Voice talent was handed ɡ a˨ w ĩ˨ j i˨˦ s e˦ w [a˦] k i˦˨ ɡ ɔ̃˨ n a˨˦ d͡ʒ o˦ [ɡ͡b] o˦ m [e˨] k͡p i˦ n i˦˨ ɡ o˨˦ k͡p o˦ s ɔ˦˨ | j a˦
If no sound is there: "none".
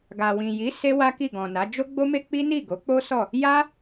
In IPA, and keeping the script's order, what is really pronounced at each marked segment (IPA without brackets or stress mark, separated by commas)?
a˦, ɡ͡b, e˦